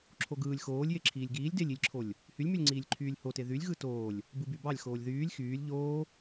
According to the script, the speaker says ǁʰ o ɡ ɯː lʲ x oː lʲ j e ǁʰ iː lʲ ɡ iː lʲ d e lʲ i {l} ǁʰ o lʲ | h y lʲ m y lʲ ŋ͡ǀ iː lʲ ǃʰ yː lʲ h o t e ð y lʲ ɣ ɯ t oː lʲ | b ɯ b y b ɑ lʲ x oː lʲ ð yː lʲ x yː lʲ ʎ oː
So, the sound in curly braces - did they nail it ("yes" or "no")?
no